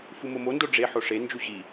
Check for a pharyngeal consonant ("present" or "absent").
present